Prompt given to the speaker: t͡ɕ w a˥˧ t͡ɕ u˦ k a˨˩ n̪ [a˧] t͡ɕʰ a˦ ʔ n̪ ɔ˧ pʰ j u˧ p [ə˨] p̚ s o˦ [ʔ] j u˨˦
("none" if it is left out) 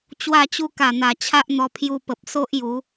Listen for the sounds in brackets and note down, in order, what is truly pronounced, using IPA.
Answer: a˨˩, ə˨, ʔ

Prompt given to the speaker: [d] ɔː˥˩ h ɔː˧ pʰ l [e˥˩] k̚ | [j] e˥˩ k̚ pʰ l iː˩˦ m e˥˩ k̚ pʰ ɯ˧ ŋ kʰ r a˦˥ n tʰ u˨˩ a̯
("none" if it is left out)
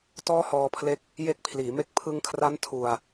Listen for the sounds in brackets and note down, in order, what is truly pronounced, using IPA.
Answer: t, e˦˥, j

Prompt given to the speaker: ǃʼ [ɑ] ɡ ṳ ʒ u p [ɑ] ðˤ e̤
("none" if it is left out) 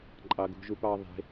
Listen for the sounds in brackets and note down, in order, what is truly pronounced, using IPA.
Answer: ɑ, ɑ

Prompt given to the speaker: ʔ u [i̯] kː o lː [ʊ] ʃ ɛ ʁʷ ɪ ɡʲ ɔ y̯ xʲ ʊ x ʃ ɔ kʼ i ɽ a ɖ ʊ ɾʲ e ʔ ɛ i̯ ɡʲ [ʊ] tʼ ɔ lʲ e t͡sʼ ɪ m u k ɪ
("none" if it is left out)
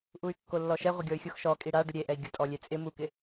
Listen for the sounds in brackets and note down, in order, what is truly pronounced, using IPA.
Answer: y̯, ɔ, ʊ

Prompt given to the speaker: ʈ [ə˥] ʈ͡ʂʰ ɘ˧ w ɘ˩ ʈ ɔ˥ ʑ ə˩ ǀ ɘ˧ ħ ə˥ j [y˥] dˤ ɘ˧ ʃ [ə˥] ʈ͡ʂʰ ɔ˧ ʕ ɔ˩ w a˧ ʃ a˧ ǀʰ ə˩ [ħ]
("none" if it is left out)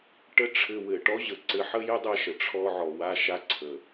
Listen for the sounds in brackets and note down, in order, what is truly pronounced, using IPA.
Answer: ə˥, ɪ˥, ə˩, none

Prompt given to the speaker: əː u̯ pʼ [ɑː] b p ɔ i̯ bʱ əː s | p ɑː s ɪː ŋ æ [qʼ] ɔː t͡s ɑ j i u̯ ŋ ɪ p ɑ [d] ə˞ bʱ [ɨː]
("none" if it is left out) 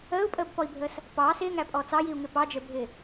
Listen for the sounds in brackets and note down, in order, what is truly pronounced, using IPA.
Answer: əː, pʼ, d͡ʒ, ɪː

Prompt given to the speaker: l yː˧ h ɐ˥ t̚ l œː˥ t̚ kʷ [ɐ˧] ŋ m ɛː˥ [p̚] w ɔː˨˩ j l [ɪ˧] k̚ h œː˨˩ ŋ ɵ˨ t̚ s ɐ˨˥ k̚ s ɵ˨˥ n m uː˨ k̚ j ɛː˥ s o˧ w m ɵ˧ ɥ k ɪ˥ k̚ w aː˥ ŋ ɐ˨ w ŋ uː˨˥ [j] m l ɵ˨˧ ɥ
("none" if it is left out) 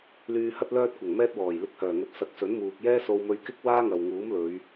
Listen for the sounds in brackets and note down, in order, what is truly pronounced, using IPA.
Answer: ɐ˨˩, t̚, ɪ˧, none

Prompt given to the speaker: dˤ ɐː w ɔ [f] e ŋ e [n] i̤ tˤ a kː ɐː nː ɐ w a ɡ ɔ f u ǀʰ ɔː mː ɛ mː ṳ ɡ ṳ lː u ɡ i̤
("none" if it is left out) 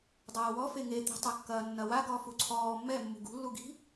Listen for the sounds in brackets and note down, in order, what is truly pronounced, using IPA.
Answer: f, t̪

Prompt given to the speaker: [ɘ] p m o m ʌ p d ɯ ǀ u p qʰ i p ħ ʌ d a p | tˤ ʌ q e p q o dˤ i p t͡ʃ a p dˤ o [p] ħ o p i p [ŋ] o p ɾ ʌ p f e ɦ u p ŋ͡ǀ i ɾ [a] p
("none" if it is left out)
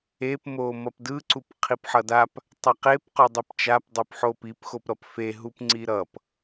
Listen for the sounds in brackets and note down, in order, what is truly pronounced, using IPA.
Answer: e, p, x, ʌ

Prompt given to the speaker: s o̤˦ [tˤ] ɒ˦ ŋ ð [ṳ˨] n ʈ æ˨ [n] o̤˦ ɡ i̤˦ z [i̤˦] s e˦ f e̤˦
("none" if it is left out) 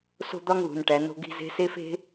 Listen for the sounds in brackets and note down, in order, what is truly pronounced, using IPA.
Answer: d̪, ṳ˨, n, e̤˦

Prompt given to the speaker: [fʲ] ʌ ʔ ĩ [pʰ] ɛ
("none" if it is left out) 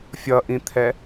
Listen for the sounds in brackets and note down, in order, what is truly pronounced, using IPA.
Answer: fʲ, t̪ʰ

